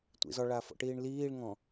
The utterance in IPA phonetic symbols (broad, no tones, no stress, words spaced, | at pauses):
tʷḭzɔɭa fɔ̰ʈiːɳliːɭŋɔ̃